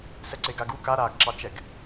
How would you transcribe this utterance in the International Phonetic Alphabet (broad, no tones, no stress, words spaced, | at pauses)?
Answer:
sɛǀeɡaɡu kaɾaːɡǁɑt͡ʃɛɡ